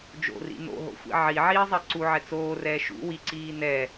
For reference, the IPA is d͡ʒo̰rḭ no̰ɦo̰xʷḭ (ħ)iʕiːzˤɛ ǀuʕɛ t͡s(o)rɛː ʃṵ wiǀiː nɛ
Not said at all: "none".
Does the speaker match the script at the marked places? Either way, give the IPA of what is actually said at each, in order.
ʕ, oː

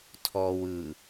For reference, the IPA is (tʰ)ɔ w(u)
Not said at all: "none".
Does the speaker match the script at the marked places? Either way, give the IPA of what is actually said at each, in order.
tʰ, ɯ

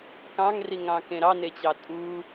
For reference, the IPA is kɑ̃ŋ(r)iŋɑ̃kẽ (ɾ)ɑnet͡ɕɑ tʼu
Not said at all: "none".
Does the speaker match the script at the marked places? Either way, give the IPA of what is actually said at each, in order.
r, ɾ

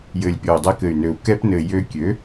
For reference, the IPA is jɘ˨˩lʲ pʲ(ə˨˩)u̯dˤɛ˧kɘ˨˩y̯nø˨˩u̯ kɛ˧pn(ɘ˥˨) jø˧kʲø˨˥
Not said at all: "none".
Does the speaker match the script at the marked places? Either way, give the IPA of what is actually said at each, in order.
ɔ˨˩, ɘ˨˩

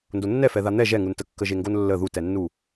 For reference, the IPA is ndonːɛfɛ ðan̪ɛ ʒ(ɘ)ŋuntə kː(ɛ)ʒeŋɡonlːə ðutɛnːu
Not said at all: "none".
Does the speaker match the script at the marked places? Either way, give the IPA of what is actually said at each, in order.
ɛ, ə

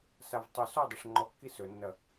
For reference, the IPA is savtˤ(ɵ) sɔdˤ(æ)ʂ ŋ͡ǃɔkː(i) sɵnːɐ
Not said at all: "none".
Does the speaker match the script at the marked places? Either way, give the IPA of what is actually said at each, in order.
ɵ, ɐ, i

